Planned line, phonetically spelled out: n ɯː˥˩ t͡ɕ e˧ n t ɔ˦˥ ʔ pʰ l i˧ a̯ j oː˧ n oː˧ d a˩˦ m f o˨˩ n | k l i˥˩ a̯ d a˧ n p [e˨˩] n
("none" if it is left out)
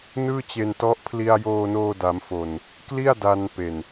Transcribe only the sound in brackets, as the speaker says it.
e˨˩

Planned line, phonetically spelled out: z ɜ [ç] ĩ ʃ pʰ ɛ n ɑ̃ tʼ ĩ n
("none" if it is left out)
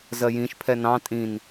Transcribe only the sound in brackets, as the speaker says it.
j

